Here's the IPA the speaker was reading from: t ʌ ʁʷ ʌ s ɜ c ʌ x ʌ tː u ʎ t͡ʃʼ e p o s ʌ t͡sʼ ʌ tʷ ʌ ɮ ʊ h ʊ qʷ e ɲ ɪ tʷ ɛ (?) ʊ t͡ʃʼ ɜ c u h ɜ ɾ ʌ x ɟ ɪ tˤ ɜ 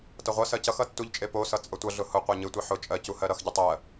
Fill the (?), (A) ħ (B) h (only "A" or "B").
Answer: A